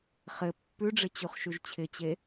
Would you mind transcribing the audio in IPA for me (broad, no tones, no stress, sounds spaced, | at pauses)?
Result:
χ ɘ pː ʉ ɖ͡ʐ ɪ t͡ɕ u χ ʃ ʉ ʒ t͡ɕʰ ɪ t͡ɕ e